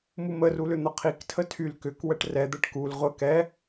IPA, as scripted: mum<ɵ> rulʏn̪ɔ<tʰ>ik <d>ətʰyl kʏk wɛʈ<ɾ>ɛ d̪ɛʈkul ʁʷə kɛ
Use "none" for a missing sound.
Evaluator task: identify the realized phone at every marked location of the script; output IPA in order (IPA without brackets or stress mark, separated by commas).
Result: ə, qʰ, tʰ, r